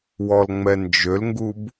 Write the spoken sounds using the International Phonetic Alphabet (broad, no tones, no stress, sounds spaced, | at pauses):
w ɔ l ŋ͡m ɛ n d͡ʒ ø l ŋ ɡ u b